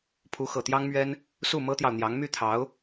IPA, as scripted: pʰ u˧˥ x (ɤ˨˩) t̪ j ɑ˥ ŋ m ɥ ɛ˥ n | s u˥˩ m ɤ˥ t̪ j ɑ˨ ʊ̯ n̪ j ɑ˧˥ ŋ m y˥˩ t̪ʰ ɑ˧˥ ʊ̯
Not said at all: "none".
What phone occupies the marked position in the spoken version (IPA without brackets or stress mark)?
ɤ˨˩